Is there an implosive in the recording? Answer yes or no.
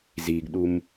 yes